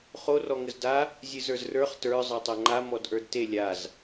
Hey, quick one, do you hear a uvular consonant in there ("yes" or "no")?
yes